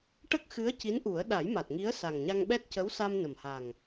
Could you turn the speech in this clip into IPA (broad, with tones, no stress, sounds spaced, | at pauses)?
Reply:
ʈ ə˦˥ k̚ x ɨ˧˥ ə̯ c i˧˥ n ʔ u˨˩˦ ə̯ ɗ a˨˩˦ j m a˨˩ t̚ ŋ i˧˥ ə̯ s a˨˩ ŋ ɲ a˧ ŋ ɓ ɛ˦˥ t̚ c ə˧˥ w s a˧ m n ə˨˩ m h a˨˩ ŋ